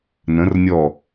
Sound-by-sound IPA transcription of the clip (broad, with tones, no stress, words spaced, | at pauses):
nə̃˨˦rnʲɔ˧˩